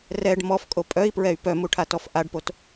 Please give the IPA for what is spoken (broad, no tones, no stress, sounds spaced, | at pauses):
r ɛ ɖ m ɔ f kʼ o pʼ œ i̯ p ɹ ɛ y̯ p œ m u ʈʰ a t ɔ f ʔ a ɖ p o t